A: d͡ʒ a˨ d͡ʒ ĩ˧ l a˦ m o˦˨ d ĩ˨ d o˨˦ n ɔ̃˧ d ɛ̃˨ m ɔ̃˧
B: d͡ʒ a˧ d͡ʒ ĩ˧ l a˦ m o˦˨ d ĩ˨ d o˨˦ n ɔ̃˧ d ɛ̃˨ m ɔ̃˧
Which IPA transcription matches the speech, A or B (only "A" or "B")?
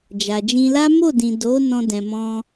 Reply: A